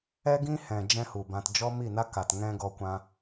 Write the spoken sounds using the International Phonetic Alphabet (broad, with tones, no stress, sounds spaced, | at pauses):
ɛ˦ ɡ ĩ˦ h ɛ̃˨ d͡ʒ ɛ̃˦ h u˨ b ã˧ t d͡ʒ ɔ˦ m i˦˨ n a˦ k a˨ t ŋ ɛ̃˦ ɡ ɔ˧ kʷ ã˧